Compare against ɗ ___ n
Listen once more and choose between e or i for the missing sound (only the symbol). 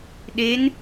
e